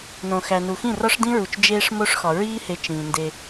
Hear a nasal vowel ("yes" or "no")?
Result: yes